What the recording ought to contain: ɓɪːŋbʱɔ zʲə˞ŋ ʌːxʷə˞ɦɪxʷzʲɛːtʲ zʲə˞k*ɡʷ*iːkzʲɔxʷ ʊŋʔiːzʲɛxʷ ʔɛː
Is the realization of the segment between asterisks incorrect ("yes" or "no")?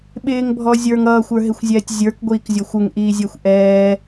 no